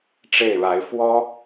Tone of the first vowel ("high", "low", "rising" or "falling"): falling